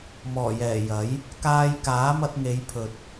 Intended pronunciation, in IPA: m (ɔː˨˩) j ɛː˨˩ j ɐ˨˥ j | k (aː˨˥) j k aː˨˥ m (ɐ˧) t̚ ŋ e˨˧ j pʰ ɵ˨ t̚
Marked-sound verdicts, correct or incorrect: correct, incorrect: aː˧, correct

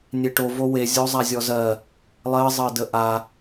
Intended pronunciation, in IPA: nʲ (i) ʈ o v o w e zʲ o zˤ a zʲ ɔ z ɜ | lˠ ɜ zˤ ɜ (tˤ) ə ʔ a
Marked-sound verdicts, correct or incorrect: incorrect: e, incorrect: d

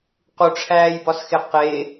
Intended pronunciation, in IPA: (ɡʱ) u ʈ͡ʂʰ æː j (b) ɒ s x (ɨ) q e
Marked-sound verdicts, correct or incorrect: incorrect: q, correct, incorrect: e

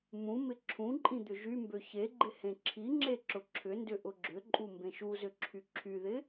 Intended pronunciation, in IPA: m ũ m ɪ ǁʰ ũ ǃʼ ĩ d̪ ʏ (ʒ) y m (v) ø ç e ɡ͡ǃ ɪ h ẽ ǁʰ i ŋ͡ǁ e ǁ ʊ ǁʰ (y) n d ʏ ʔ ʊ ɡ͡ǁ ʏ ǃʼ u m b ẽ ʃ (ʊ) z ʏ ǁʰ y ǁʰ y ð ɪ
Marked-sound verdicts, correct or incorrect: correct, incorrect: b, incorrect: ʏ, incorrect: u

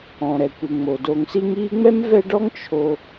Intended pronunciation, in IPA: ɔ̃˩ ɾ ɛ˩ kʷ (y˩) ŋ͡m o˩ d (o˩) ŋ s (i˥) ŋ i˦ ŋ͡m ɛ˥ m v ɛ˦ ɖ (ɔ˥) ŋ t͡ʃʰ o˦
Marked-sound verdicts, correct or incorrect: incorrect: i˩, incorrect: o˨, incorrect: i˦, correct

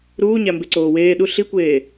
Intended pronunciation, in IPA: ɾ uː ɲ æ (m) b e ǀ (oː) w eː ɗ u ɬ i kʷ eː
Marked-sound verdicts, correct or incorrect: correct, correct

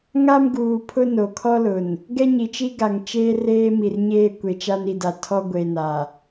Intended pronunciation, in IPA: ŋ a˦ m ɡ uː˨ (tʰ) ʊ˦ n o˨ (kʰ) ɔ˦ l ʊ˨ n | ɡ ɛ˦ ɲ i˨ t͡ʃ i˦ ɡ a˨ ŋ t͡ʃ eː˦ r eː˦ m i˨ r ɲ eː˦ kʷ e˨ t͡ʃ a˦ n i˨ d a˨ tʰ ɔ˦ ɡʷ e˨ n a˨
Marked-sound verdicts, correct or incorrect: incorrect: pʰ, correct

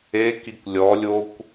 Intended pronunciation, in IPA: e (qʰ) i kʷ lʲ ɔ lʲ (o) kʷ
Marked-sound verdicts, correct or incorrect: incorrect: k, correct

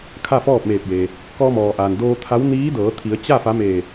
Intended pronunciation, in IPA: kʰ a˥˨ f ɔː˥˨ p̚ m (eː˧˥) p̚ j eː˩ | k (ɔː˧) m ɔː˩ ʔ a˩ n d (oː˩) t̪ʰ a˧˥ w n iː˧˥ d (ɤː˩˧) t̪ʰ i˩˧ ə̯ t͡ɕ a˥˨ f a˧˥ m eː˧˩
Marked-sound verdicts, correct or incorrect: incorrect: eː˧˩, correct, incorrect: oː˧, correct

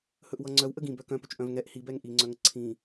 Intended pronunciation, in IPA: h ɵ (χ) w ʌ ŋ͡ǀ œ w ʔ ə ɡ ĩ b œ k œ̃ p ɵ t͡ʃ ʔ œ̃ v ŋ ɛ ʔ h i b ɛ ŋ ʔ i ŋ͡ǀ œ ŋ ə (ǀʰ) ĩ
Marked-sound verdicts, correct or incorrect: incorrect: ʔ, correct

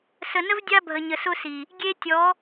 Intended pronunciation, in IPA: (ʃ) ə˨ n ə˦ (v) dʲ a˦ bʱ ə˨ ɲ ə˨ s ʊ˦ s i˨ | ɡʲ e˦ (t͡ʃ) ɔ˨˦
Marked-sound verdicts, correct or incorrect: incorrect: s, correct, incorrect: tʲ

